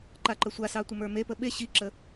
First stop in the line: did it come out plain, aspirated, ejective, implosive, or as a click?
click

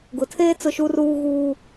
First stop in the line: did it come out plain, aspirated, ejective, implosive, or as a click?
plain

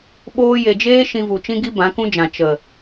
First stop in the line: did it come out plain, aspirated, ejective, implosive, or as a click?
implosive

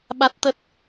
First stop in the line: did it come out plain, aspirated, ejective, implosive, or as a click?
implosive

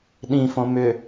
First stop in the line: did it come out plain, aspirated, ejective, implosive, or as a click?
implosive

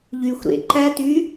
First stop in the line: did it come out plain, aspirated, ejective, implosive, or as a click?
click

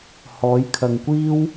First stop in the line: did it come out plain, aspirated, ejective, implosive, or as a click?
aspirated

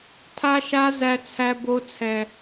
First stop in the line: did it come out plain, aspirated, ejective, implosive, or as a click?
aspirated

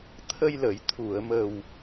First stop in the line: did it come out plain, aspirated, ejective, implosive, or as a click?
aspirated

